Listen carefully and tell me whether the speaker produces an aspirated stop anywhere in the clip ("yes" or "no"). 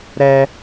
no